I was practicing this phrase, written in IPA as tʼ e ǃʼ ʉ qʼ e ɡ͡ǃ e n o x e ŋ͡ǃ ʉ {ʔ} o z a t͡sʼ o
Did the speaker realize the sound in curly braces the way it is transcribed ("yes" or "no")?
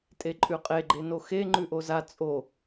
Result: yes